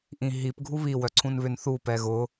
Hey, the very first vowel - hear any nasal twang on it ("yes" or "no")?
yes